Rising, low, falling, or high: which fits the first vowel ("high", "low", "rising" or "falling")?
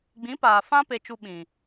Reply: rising